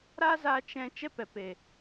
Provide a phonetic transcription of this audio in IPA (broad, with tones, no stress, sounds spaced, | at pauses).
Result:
ɾ a˦ z a˧ t͡ʃ ɛ̃˦ t͡ʃ ɛ˦ p ɛ˨ p e˨